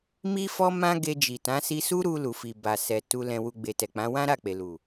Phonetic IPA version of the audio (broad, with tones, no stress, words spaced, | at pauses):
mi˦fɔ˦ mã˦ɡe˧d͡ʒi˨tã˨˦ si˧su˦ɾu˧ lu˨fi˨ba˨ sɛ˨ tu˧ lɛ̃˧wu˧ ɡ͡be˨tɛ˨k͡pã˨˦ wã˦ɾa˦˨k͡pe˨ lu˨